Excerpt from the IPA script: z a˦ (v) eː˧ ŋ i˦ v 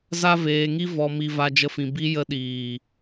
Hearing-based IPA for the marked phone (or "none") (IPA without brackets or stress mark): v